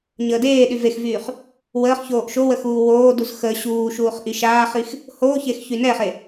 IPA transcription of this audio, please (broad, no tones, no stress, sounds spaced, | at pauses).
ɲ əː d eː ɗ y v e x v yː χ | w əː χ ç oː ʔ ʃ o w ə x uː w oː d u z x ə ɕ uː ʃ uː χ ʔ i ʃ aː χ i x | h oː ç e x ç y n ɛ χ e